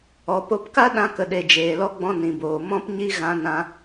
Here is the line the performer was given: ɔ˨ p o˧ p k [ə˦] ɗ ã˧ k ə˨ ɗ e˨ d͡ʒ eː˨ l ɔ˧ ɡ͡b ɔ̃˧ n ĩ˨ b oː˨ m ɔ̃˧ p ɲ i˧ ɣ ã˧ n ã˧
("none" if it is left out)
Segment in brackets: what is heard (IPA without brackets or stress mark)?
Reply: a˦